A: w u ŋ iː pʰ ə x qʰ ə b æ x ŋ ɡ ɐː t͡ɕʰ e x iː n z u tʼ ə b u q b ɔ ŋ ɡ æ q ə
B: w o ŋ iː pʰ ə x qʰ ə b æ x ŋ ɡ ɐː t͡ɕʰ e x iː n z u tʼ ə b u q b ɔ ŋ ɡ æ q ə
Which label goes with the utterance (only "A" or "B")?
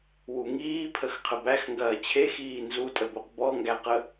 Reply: A